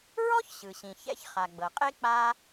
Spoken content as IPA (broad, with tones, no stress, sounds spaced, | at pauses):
ɹ ɔ˥ ç ɕ ɯ˩ ɕ ĩ˩ ç ɛ̰˥ ç χ a˩ ɡ͡b ɤ˩ qʼ e˥ k͡p a˥